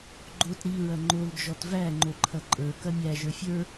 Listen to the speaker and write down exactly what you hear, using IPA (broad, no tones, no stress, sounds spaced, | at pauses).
ɡ͡ǃ o t ɾ i ɹ ɐ ŋ͡ǃ o l d͡ʒ ɔ t v æ ŋ͡ǃ o ǃʰ ɐ ǃʼ ə˞ k ɐ mʲ æ ʒ ə˞ fʲ ə˞